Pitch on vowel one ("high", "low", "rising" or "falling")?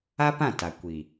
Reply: high